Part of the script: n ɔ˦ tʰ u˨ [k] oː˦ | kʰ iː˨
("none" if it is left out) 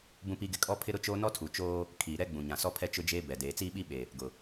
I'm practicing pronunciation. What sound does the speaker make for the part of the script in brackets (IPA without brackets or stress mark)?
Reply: t͡ʃ